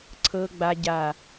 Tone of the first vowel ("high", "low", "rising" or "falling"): low